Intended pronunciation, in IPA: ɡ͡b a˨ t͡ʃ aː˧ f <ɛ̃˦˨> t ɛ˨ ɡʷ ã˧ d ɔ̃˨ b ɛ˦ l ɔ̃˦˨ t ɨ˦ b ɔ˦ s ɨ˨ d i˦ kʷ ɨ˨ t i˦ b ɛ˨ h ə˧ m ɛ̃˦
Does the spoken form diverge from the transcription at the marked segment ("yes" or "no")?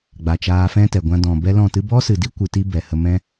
yes